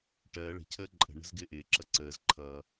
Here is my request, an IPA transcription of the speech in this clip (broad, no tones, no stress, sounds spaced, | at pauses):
ʈ ɜ ɭ ə̤ cʰ əː ǃʼ ə̤ ɳ ə̤ z ɡ ɪː ʔ ɪː ǁ ʌ ǀ əː z ǃʰ ʌ